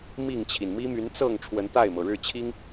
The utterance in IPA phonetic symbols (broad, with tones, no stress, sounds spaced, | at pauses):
m i˥˨ ŋ t͡ɕʰ i˩ n m i˦ m y˨˦ n t͡s ɤ˥˨ ŋ ʈ͡ʂʰ w ə˨˦ n t̪ a˥˨ ɪ̯ m ɤ˩ ɻ ɻ̩˥˨ t͡ɕʰ i˦ ŋ